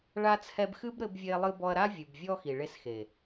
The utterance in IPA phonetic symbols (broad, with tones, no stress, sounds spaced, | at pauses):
ɭ a˧ t͡sʰ ɛ˧ b x ɨ˦ b ɾ ɘ˧ b vʲ e˧ lˠ ɨ˧ b ɔ˧ ɐ̯ ɾ a˦ vʲ ɨ˨ b vʲ ɔ˧ x i˨ ɭ e˧ s x e˨